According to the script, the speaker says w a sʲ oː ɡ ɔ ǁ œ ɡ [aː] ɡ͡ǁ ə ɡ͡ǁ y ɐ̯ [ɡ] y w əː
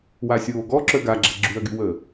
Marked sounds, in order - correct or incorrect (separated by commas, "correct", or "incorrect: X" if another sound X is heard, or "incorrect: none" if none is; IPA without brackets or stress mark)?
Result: incorrect: a, correct